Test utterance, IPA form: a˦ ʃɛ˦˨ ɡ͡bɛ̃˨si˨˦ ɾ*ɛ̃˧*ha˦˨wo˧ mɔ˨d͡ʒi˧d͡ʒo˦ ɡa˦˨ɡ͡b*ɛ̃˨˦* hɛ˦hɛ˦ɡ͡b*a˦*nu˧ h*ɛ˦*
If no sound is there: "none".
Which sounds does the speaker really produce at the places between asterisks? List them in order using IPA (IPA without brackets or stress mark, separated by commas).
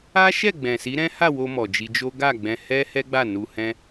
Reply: ɛ̃˦, ɛ̃˧, a˦˨, ɛ̃˦